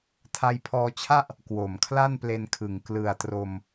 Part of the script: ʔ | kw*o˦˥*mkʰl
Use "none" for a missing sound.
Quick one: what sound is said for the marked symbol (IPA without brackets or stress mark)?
o˨˩